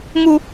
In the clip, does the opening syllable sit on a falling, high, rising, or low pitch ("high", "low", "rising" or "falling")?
high